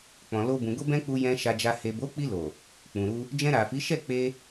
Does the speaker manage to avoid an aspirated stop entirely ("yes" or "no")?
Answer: yes